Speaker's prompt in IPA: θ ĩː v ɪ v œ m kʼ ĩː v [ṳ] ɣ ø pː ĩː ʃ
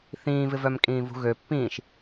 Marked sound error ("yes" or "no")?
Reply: no